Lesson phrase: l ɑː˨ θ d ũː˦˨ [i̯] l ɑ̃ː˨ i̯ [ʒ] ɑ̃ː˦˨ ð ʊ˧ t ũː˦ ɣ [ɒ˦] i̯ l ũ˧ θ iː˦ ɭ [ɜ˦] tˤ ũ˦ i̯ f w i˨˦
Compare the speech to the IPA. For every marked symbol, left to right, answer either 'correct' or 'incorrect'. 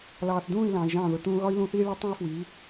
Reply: correct, correct, correct, correct

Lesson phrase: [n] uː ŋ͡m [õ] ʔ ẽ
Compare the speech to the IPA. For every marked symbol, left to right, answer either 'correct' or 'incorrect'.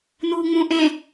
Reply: correct, incorrect

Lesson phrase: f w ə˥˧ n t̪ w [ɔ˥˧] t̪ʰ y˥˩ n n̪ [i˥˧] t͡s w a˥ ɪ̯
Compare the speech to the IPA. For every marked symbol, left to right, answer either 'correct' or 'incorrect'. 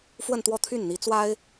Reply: correct, incorrect

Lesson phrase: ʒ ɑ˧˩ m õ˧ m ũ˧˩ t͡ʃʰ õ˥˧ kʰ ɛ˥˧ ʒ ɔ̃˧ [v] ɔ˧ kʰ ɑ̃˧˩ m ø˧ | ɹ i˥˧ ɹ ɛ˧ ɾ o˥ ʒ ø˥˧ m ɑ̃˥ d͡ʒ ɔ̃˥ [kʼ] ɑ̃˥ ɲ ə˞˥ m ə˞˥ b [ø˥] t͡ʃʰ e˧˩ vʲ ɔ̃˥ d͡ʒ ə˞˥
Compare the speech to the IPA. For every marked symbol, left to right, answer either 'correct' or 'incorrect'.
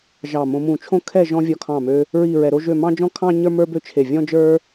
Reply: incorrect, incorrect, correct

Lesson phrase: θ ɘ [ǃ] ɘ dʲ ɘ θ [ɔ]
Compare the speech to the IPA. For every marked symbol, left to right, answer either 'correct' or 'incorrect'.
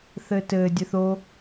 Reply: incorrect, incorrect

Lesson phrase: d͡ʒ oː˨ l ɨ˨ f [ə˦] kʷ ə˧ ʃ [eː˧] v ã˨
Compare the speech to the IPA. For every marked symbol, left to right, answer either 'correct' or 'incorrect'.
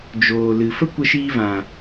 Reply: correct, incorrect

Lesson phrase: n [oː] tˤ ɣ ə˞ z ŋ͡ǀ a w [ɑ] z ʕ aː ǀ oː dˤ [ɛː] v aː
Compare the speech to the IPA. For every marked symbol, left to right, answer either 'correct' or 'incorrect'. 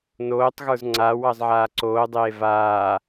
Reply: correct, correct, incorrect

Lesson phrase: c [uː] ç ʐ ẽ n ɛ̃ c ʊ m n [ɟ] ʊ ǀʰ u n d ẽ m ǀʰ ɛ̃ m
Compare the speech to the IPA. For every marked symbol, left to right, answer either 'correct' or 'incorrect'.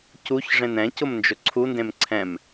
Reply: incorrect, incorrect

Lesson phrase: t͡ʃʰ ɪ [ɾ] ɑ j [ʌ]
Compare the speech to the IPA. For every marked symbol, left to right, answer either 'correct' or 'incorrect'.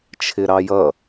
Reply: correct, correct

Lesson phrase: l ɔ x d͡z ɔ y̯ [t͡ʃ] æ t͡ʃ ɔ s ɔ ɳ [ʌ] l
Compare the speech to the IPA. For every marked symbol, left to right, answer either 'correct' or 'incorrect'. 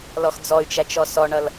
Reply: correct, correct

